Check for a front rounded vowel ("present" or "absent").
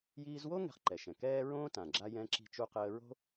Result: absent